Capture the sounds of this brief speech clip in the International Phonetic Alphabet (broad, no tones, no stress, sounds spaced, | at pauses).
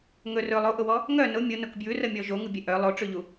ŋ ɵ r ɵ lˠ o ʔ ʊ w ɔ | ŋ œ n ʊ mʲ ʊ n ʊ k b j ʉ r ə mʲ ɔ ʒ o ŋ u bʲ ɛ ʔ œ lˠ o ʈ͡ʂ ʉ ʎ u